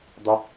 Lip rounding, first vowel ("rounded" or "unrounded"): unrounded